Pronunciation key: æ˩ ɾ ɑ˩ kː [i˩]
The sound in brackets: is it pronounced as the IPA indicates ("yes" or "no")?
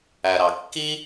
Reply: no